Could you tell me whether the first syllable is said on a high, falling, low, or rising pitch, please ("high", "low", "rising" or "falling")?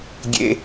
low